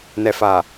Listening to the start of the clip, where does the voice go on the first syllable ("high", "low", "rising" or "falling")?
low